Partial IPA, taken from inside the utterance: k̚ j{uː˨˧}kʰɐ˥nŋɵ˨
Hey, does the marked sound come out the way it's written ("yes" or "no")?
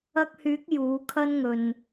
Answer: no